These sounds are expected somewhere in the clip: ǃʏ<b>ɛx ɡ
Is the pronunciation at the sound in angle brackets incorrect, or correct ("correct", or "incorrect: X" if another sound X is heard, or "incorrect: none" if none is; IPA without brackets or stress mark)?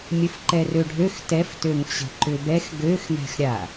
correct